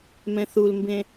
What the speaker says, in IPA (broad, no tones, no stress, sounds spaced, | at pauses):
m ɛ̃ θ u l m b ẽ